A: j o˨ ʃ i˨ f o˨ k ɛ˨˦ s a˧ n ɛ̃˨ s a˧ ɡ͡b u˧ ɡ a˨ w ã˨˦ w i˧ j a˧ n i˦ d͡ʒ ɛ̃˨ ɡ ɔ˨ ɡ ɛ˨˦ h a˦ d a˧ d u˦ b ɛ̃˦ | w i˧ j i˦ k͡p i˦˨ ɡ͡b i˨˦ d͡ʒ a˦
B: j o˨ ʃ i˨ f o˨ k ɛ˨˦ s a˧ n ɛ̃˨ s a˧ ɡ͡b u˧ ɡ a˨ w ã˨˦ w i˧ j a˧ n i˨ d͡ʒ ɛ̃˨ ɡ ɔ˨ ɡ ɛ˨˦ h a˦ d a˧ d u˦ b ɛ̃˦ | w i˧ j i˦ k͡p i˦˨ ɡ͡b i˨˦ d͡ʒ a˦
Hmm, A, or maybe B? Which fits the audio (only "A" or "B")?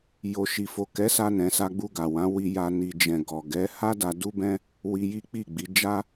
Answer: B